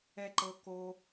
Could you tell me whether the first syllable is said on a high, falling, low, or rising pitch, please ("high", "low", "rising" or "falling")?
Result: high